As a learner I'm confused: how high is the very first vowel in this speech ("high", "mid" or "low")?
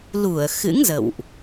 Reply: high